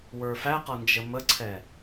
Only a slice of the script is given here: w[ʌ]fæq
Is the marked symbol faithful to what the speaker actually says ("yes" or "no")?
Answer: no